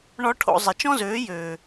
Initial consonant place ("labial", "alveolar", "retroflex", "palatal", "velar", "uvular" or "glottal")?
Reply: retroflex